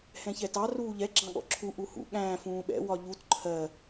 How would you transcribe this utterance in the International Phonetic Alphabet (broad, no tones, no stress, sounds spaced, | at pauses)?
h ɛ̃ ç ɛ t ɑ r uː ʎ ɛ ɡ͡ǁ ɑ̃ ɠ ɔ̰ ǁʰ u ʔ u h ṵ ɠ æ̃ː f ũː ɓ ɛ̰ w ɒ ʎ u t ǃʰ ɜ